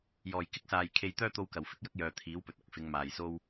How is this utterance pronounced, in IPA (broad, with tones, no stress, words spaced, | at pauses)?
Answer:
jɔː˨˩jkɪ˥k̚saː˨j kʰe˧j t̪œː˥t̪o˧wkɐ˨˩w fɪ˥k̚jɐ˥k̚jœː˨ t̪ʰiː˨˥wpɵ˨t̚ ɐ˥k̚fɪ˨˧ŋmaː˨j so˥w